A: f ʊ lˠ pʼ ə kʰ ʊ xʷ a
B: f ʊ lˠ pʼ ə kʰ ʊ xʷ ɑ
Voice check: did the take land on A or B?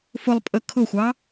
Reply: B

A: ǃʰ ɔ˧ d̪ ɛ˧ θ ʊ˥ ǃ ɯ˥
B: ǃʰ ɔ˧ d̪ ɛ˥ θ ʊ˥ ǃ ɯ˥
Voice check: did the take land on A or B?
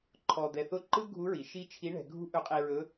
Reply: A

